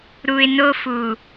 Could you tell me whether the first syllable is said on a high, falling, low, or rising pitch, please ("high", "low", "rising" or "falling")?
low